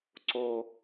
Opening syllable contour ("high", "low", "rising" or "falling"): high